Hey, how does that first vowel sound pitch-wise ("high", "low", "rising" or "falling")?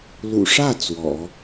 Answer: low